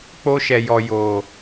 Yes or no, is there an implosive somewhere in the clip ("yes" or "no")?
no